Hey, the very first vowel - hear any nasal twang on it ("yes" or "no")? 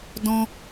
yes